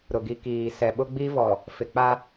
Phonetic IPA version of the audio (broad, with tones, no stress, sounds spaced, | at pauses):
ɾ ʊ˨ ɡ i˨ k iː˨ s ɛ˨ ɓ ʊ˦ ɡ͡b i˦ v ɔ˨ | f ɪ˨ k͡p a˦